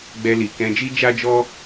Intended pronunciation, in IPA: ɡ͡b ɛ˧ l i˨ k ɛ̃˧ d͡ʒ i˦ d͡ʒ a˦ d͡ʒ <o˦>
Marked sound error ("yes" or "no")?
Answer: yes